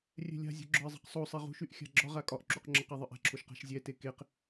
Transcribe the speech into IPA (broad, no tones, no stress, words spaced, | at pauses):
rʲɛ̤lʲa̤zʲṳ ɡ͡ǁɒɪ̯zˤɛ̤qsˤosˤe ʁṳʃyʔ xʲa̤ɡ͡ǁɒʁa kʼɒʔǁuq ŋ͡ǁɐqɛ ðˤɨʔa̤ǁʰoʃ qa̤ʃzʲɛte keq